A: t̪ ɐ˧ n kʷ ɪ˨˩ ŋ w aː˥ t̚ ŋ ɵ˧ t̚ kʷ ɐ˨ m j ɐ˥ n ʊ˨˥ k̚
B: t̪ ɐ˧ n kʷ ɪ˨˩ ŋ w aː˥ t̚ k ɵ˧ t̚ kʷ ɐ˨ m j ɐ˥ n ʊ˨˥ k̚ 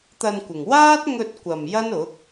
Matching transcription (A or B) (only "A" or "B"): A